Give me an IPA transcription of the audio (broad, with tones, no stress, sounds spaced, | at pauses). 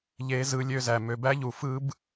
ʎ e˦ z ɯ˦ lʲ ø˦ z æ˧ m ø˧ b æ˦ ʎ u˧ f ɯ˦ b